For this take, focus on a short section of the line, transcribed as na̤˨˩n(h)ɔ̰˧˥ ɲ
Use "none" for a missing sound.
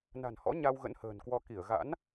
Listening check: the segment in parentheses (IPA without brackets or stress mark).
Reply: h